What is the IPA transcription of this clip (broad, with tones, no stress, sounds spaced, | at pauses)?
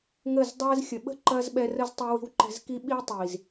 ŋ ə˦˨ z dˤ ɛː˦ z xʲ ə˨ ɓ ə̤˦ ǃ ɐː˦ z ɓ ɛ˧ r ə˦ z tˤ i˧ w i̤˧ w ǃ ɛ̤˧ z k i˦ ɓ iː˦ tˤ iː˨ z